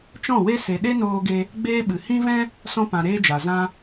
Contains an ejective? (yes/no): no